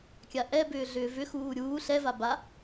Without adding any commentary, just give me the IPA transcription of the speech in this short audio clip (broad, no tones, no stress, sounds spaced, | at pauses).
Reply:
kʲ a ʔ ɛ b ʏː ɮ ʏː v ʏ x uː ɾʲ uː ɬ ɛ v a b a